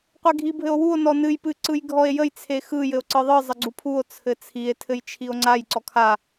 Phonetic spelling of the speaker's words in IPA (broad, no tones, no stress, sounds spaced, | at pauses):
qʷ e ɡʱ i bʱ ɘ o̯ w u o̯ n ɔ n ɨ j p ɨ ǀ ɯ j ɡʱ ɔ e̯ j ə j t͡sʰ e x ɯ j ɘ o̯ ǀ ɯ ðˤ ɯ zˤ ə ɡ͡ǀ u pʰ u o̯ t͡sʰ ɘ t͡sʰ i e̯ tʰ ɘ j t͡ʃʰ i o̯ ŋ͡ǀ a j ǀ ɔ kʰ a